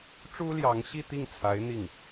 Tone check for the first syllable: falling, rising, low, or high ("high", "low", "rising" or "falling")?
high